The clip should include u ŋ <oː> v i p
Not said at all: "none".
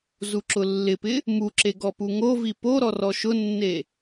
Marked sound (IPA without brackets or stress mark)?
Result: o